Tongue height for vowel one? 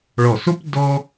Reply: mid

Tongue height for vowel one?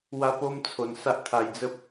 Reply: low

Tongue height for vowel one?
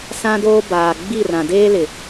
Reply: low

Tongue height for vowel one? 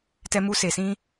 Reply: mid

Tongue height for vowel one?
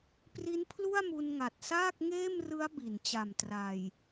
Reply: high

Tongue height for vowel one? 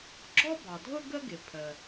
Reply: mid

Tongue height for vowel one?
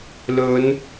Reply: mid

